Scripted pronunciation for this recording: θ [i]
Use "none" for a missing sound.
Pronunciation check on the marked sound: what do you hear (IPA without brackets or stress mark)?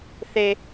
e